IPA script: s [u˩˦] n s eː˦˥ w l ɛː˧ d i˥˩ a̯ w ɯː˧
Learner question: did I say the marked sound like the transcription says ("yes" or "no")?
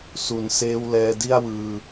yes